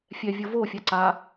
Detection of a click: present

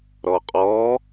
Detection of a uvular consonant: present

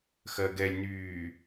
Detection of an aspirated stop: absent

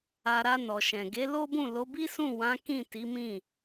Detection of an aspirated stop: absent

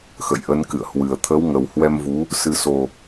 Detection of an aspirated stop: present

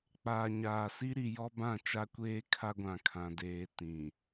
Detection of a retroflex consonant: absent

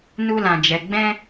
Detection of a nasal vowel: present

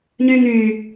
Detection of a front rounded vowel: present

